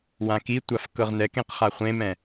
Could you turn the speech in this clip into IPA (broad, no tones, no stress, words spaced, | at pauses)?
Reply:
wãkitʷaf kɤʁnɛkẽq χaχʷẽmɛ̃